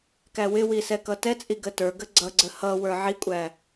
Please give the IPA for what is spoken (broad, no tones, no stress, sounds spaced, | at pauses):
k æ w ɪ w i s ɛ k ʌ t ɛ t͡sʼ i ɡ ə t ə˞ ɡ ə ɡ͡ǀ ʌ ɡ͡ǀ ə h ʌ w ə˞ ʕ i kʷʼ æ